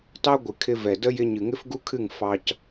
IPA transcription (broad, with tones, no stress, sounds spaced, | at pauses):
t ɑ˦ ɡʷ ɨ˨ kʰ ɪ˧ v ɛ˨ d ə˦ j ɪ˧ ɲ ɨ˨ ŋ ɪ˦ f ɡ u˦ kʰ ɨ˦˨ ŋ f ɑ˧ c